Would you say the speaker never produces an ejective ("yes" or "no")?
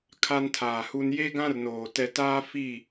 yes